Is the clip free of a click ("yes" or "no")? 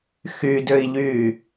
yes